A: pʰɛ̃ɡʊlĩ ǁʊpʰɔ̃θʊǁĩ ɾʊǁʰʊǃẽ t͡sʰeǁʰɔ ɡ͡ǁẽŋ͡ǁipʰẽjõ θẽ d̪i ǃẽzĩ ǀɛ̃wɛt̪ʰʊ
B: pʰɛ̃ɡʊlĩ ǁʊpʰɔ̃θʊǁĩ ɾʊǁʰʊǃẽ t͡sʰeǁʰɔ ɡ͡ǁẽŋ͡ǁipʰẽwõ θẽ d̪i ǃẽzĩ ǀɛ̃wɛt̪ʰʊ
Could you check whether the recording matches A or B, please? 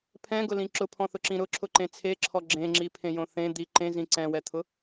A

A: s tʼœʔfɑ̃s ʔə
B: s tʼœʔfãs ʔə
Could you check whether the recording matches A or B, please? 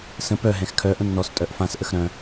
B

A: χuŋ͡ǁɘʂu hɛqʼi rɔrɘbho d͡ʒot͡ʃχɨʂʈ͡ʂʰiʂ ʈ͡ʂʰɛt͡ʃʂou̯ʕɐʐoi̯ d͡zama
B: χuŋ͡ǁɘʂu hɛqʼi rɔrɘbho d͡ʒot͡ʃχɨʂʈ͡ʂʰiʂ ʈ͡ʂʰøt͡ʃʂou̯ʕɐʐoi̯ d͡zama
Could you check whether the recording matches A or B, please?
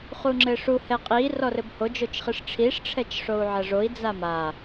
A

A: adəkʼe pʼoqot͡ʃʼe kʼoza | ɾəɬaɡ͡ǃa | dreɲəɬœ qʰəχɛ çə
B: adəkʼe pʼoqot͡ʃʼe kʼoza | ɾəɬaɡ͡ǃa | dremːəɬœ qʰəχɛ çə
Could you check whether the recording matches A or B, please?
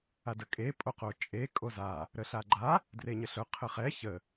A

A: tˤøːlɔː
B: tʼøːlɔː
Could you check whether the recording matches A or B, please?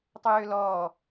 A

